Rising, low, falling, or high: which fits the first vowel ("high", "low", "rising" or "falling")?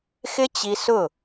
high